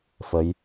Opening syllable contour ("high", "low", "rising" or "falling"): rising